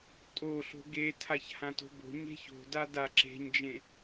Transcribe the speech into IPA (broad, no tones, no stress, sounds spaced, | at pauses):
tʼ o ɬ o̤ ɡ e tʰ a ç h ã t o̤ b o̤ ɲ e̤ ç o̤ d a d a ǁ e̤ ɲ d͡ʒ ẽ